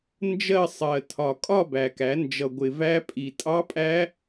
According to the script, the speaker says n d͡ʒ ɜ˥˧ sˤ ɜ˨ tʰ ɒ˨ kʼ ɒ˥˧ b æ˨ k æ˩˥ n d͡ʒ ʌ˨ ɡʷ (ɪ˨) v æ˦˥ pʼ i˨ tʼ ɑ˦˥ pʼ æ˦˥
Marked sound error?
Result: no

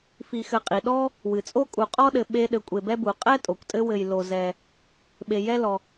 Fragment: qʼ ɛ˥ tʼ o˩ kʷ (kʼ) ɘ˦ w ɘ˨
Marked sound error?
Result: yes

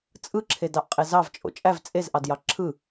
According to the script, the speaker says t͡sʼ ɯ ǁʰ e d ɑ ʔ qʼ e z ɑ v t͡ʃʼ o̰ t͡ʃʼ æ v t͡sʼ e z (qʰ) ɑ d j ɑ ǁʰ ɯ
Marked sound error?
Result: yes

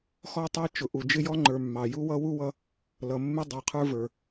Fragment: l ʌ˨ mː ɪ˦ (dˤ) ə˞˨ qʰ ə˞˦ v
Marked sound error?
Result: no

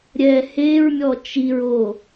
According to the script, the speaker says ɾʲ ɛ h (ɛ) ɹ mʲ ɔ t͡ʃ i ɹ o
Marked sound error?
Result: yes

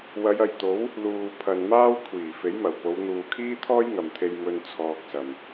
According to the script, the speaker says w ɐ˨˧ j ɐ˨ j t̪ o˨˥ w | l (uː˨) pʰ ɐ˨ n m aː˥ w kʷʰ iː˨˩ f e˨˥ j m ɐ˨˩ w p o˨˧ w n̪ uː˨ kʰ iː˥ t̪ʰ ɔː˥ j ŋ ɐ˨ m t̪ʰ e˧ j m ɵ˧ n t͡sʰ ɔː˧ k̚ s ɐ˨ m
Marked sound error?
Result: no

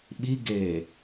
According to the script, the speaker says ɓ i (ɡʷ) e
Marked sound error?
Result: yes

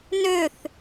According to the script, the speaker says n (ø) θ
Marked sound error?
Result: no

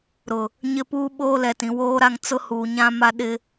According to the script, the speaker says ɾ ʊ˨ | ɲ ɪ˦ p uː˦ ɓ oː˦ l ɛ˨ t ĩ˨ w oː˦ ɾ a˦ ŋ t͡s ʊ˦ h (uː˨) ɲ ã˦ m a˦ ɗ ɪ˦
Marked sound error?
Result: no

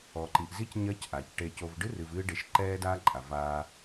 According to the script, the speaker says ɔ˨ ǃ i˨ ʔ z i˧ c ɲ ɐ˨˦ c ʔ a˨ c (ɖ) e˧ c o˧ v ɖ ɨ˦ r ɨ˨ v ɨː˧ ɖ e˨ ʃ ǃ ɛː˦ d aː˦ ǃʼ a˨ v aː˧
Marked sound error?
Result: yes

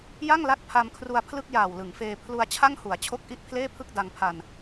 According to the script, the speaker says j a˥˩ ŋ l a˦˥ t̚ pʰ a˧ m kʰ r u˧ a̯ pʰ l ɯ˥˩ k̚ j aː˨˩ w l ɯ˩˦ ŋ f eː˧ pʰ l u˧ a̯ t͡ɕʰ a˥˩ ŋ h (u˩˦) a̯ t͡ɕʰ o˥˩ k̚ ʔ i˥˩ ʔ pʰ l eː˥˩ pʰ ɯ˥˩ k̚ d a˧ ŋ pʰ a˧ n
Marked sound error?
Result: no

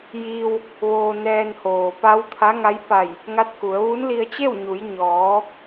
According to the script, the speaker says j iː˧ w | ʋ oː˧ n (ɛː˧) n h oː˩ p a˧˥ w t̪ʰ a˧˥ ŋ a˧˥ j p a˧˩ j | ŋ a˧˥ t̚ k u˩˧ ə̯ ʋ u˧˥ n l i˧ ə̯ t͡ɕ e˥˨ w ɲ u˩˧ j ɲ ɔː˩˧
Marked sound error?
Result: no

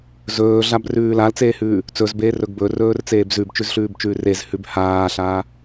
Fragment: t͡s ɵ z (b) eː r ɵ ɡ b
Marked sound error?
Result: no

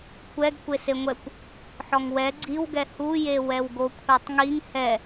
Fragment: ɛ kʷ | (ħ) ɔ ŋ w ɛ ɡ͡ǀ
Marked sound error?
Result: no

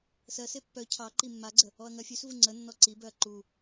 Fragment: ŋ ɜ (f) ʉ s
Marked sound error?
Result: yes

